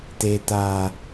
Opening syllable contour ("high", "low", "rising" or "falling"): low